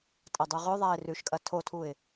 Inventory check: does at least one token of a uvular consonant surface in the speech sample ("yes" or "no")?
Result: yes